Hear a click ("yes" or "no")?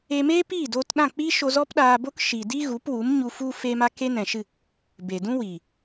no